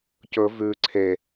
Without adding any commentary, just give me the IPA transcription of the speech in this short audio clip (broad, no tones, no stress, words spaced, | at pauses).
cɵ vʉ ǀʰe